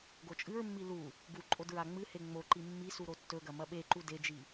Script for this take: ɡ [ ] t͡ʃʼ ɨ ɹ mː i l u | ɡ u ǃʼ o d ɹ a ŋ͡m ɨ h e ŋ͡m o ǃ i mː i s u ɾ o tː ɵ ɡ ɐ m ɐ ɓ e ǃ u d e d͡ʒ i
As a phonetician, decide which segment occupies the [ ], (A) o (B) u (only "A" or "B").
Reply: A